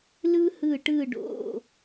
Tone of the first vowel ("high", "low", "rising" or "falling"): high